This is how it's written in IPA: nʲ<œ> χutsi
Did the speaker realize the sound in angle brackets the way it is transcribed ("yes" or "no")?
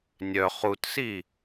yes